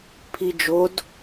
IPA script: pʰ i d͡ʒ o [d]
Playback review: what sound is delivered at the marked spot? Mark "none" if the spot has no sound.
d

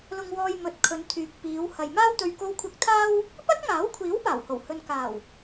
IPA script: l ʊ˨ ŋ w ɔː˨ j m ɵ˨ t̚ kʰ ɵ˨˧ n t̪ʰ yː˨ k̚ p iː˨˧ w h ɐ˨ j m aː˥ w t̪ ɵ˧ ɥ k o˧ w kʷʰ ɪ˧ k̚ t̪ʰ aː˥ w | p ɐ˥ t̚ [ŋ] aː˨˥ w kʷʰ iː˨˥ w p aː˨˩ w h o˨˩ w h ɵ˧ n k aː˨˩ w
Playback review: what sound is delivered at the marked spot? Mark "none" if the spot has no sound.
ŋ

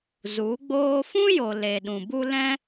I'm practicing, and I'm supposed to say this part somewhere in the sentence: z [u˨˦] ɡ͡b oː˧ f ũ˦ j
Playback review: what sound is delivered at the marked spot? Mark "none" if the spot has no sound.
u˨˦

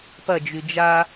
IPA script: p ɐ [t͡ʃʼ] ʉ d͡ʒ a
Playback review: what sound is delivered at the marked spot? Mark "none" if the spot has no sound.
d͡ʒ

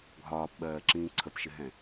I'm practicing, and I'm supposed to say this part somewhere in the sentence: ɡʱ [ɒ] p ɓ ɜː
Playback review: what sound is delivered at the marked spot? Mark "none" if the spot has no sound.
ɒː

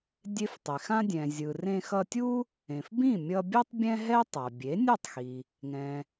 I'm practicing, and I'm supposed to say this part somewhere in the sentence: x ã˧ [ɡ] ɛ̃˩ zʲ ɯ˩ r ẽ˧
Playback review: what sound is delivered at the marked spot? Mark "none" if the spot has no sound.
dʲ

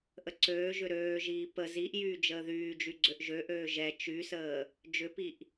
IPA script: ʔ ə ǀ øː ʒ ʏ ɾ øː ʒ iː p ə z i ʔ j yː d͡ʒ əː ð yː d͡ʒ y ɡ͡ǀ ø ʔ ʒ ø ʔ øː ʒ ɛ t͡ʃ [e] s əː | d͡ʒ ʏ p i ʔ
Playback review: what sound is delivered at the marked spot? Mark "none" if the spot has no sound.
y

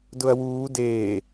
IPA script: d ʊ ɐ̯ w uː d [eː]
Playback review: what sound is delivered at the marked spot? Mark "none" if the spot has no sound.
eː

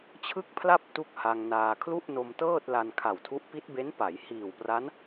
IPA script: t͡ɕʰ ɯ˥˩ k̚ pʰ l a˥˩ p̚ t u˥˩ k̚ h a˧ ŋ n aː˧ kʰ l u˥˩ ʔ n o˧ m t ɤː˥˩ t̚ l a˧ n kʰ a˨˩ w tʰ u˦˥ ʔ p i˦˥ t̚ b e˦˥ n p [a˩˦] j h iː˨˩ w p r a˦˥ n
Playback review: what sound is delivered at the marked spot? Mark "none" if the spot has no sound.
a˩˦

